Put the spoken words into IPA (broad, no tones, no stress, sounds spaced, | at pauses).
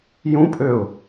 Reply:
j ũ pʼ ø ʊ̯